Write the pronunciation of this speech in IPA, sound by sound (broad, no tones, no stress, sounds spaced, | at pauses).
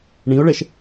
ɳ ĩ ʊ̯ ɭ ɛ ʃ